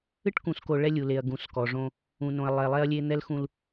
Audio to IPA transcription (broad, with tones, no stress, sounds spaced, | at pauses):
ɨ˦ ʈ k ũ˨ s k o˨ ɭ ɛ˦ lʲ u˨ l e˨ ɐ̯ ɡ ũ˨ s k ɔ˨ ʐ õ˦ | ũ˨ n õ˨ ɐ̯ lˠ ɛ˨ lˠ ɛ˦ ɐ̯ lʲ e˦ n̪ ɛ˦ l x ũ˦ l